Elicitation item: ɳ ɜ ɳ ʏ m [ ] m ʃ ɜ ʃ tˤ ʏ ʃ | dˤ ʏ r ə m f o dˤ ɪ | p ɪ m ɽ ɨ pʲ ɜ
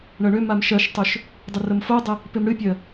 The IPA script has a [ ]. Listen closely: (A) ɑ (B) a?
B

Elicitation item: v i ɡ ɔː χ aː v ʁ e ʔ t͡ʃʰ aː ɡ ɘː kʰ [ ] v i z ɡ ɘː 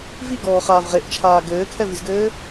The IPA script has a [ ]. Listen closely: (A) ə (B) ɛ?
B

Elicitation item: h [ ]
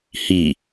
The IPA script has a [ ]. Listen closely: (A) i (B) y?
A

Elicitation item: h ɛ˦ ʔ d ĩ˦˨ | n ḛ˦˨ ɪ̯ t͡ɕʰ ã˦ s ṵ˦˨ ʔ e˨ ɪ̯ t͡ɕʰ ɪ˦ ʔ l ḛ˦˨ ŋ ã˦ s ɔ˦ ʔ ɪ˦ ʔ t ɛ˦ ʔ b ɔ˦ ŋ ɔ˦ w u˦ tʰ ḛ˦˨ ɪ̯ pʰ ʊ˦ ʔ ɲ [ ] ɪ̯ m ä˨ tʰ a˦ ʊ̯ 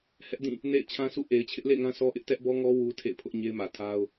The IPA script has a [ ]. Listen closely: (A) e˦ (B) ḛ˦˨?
A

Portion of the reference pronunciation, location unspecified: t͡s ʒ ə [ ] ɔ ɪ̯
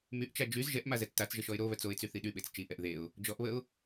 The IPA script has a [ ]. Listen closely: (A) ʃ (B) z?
A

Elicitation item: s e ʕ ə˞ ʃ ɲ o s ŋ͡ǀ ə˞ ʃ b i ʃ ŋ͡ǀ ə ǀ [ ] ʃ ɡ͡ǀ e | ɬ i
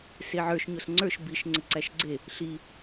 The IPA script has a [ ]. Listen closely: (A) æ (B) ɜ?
A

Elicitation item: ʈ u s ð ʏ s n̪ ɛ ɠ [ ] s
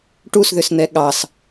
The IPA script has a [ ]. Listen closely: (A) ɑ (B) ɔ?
A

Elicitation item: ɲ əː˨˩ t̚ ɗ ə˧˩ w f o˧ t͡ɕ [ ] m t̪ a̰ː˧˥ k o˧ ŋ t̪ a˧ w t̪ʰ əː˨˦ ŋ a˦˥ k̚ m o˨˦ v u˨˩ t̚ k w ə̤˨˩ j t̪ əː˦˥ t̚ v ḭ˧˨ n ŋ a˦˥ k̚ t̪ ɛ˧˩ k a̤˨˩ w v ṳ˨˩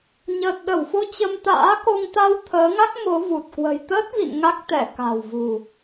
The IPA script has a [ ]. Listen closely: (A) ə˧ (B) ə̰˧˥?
A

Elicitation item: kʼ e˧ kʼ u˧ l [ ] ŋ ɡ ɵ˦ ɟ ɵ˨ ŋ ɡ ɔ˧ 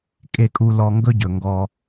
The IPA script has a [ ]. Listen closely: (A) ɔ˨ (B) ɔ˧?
B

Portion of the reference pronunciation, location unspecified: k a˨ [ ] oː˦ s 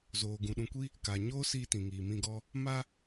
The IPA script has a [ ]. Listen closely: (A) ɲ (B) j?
A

